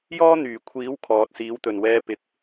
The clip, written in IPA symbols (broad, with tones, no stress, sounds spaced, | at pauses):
j ɔː˥ n̪ yː˨˩ kʷʰ iː˨˥ w kʰ ɔː˨ t̚ s iː˨˥ w t̪ ɵ˨˩ n w ɛː˧ p ɪ˨˥ k̚